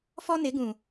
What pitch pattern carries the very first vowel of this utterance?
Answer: high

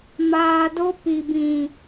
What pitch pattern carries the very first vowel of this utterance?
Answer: low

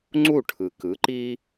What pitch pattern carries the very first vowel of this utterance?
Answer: falling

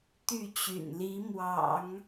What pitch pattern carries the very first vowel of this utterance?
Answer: falling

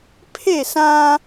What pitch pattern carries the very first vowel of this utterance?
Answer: falling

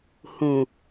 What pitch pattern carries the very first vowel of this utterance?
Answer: low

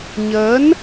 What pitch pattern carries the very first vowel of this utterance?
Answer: rising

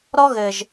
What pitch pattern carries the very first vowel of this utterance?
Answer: high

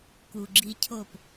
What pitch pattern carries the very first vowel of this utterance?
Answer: low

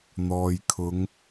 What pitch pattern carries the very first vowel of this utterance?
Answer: low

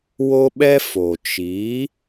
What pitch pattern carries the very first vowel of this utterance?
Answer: high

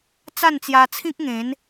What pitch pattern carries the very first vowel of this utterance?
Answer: falling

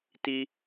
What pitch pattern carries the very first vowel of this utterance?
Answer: high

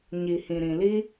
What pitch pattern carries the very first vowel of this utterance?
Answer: low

